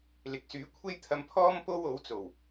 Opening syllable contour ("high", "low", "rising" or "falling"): rising